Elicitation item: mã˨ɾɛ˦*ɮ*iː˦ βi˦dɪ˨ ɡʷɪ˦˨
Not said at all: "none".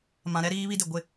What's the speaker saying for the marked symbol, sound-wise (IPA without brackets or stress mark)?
ɾ